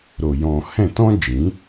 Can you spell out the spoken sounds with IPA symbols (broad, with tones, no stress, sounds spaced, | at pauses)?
ɾ o˨ j ɔ̃˨ h ɛ̃˦˨ t ɔ̃˦ d͡ʒ ĩ˨˦